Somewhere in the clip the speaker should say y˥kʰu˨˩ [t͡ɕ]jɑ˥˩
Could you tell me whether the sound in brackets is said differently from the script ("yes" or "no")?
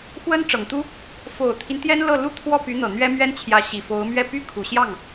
yes